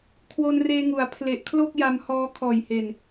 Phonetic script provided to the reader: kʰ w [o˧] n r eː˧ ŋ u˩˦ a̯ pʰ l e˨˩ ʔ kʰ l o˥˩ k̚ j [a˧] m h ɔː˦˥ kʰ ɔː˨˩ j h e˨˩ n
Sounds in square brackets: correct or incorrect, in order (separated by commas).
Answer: correct, correct